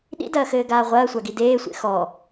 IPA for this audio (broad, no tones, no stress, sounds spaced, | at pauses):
ɗ ḭ d ɐː x ɘː ɡ aː ʁʷ ɐː sʷ a ɡ i d eː sʷ ḛ x ɔ